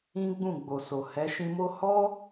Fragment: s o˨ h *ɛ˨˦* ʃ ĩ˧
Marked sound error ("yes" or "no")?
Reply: no